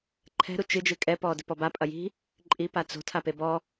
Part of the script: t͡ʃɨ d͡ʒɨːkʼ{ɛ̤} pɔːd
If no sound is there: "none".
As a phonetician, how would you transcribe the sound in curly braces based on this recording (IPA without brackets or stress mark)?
ɛ